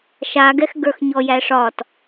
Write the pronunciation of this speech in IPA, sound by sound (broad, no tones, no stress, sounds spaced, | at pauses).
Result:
ʃ a ɡ ɛ x ɡ ə˞ x ɲ ɔ j æ ʂ ɒ t